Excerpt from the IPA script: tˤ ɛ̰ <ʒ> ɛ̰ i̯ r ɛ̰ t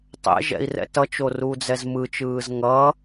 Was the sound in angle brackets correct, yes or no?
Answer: yes